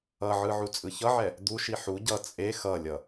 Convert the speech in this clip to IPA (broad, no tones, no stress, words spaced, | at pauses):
ʌʕɯ ʕut͡sʼɯçʌʕɛ | d̪uʃi ħu ɟʌ t͡sʼe xʌlʲʌ